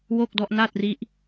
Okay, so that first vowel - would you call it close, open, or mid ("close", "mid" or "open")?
mid